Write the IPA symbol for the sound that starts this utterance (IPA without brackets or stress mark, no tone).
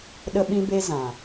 ɗ